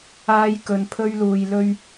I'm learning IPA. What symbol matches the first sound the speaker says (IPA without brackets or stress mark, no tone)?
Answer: aː